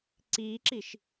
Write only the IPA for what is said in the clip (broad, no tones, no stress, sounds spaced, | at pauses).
ǀ iː ǁ i ʃ